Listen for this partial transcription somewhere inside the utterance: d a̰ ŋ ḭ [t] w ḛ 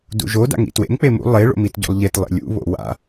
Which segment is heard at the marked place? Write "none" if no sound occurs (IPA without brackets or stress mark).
t